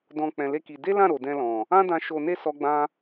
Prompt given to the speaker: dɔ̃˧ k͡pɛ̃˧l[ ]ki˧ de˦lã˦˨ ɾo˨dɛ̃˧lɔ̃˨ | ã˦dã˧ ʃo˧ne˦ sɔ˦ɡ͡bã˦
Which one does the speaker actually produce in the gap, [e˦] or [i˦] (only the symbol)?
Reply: e˦